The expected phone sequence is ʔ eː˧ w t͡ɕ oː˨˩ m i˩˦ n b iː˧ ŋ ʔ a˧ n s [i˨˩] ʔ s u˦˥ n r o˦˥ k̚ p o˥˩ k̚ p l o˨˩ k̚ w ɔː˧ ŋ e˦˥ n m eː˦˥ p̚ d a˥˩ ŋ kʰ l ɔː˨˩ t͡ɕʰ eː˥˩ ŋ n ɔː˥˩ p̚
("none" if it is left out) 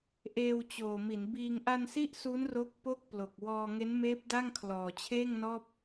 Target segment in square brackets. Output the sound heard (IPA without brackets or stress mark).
i˦˥